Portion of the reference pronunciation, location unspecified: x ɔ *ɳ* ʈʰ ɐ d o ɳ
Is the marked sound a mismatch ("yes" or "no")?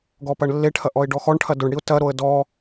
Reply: no